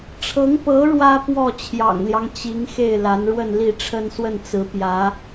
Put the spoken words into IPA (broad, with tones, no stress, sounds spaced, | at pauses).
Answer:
ʈ͡ʂʰ ɤ˧˥ ŋ p ɤ˧˥ ɻ w ä˥ p w ɔ˥˩ t͡ɕʰ j ɑ̰˨˩ ŋ l j ɑ˦ ŋ t͡ɕ i˧˥ ŋ x e˥˩ ɪ̯ l a˧˥ n ɻ w ə˥˧ n l i˥˩ ʈ͡ʂʰ ə˥ n s w ə˥˩ n t͡s ɹ̩˧˥ p j ä˧˥